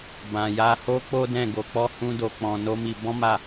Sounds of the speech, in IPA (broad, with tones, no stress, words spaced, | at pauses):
bã˧ja˦ ho˦k͡po˦dɛ̃˦˨ ɡo˧k͡pɔ˦hũ˦do˧ k͡pɔ̃˧no˦mi˧ bɔ̃˦ma˦˨